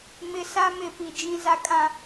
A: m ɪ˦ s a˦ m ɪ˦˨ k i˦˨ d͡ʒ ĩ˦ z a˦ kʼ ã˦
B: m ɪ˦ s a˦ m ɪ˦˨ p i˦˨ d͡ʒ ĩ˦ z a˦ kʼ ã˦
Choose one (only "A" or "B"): B